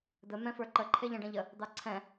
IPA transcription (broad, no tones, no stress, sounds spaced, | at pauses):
d̪ ə m ɛ̃ f ə˞ ǃ ə ǃʰ e ʎ ɐ̃ ɖ ɐ̃ ʎ ə | d̪ ɑ ǀʰ ɛ̃